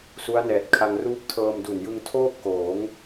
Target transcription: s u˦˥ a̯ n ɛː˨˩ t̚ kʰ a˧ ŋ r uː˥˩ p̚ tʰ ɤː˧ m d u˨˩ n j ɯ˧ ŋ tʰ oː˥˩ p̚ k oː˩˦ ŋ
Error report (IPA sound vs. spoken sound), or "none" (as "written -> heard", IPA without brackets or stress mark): none